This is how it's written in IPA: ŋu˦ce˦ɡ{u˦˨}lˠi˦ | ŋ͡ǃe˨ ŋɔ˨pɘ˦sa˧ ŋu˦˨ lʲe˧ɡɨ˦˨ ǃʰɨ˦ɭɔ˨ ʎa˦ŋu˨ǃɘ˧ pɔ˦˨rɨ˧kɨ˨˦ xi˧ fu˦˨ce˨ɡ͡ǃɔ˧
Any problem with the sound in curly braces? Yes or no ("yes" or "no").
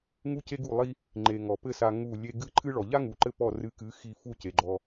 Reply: no